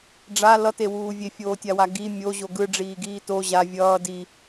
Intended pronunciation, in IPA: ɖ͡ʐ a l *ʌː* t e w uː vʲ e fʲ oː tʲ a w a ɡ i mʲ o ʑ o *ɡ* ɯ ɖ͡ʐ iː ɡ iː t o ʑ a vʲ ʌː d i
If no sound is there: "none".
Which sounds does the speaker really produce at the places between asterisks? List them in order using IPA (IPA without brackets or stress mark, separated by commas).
ʌ, ɡ